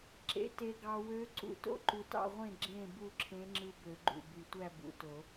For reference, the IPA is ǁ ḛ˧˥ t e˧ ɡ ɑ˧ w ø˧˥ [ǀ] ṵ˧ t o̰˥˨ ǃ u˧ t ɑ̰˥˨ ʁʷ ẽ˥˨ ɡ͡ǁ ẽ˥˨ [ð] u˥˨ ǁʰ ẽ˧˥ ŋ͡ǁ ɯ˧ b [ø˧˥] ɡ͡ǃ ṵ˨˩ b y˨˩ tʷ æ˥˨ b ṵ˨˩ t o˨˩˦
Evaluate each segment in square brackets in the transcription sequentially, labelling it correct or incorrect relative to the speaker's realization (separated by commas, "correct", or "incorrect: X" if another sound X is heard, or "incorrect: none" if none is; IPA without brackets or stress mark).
correct, incorrect: b, incorrect: ø˨˩˦